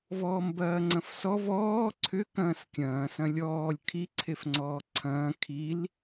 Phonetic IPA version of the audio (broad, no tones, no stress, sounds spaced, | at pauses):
v ɔː m b ɐː ŋ͡ǀ ɐ̃ f s ɔ v ɔː ǀʰ ʏ k ɐ̃ː s kʲ ɐ̃ː s ɐ̃ lʲ ɔː lʲ kʰ i ǀʰ e f ŋ͡ǀ ɔː ǀʰ ɐ̃ː kʰ i l